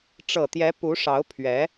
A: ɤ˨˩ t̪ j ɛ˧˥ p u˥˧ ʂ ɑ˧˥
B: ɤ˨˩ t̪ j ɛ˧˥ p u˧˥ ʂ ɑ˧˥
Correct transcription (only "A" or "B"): B